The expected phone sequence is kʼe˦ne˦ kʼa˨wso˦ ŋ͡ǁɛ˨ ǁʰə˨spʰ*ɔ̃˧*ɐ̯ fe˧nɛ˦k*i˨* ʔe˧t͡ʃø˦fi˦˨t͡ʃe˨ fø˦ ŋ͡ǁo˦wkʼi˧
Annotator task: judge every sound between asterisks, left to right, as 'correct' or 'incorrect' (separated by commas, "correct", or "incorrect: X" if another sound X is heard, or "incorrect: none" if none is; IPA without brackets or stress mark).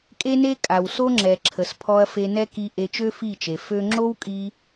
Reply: incorrect: ɔ˧, incorrect: i˧